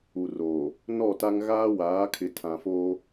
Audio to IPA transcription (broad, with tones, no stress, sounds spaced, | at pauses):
u˨ r oː˨ | n ɔ˦˨ t a˦ ŋ ɣ aː˦ w aː˨˦ kʰ ɪ˨ tʰ ã˨ f oː˦